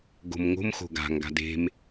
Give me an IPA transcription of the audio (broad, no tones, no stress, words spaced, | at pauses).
ɡo̤mŋo̤mxo̤ ɡa̤ŋɡa̤d e̤m